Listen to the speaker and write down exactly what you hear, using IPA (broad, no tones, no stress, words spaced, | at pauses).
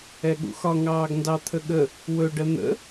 ɛɠṵxɒ ŋɑːɡndɑt̪ʰəɠə | wɵ ɖən̪ə̰